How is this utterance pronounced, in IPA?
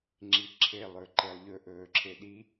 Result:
ŋ͡ǁiǁʰe lˠɵǃelˠʎɵ ʔɵːǁʰeɗi

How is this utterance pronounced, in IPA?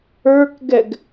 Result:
ə˞kɡɛɡ

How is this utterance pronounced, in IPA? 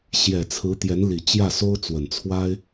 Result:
ɕjɛ˨˩t͡sʰɹ̩˧˥ t̪jɛ˧˥nli˨˩t͡ɕjä˥˩ so˥ʊ̯ t͡swə˨˩n t͡sʰwa˥ɪ̯

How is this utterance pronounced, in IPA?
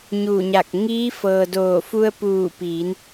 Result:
ɲuː˧˩ɲa˧˩k̚ ŋiː˧˥fɤː˩ doː˧˩fu˧ə̯ puː˧˩piː˩˧n

